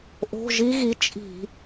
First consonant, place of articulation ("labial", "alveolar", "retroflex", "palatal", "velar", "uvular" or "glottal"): glottal